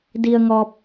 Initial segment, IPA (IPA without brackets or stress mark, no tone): d